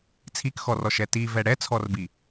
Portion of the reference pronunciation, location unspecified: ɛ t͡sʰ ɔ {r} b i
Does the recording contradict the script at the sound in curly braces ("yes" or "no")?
no